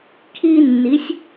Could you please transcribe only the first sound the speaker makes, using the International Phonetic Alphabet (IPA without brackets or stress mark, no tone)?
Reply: kʰ